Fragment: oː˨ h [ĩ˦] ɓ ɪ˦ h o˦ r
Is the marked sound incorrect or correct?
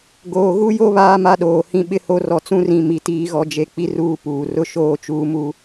correct